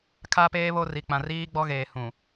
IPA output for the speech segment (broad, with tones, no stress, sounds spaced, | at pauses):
kʰ a˦ p eː˦ β o˦ r i˨ k͡p ã˨ r iː˦ ɡ͡b ɔ˦ ɣ eː˨ h ũ˨